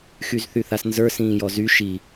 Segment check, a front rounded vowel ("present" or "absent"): present